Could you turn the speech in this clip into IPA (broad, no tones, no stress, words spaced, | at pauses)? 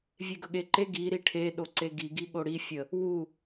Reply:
vʲeɡɵɠeǃe ɡi ɾiʈʰe ɗoǀeɡi ɡiɠoɽi fʲə | wu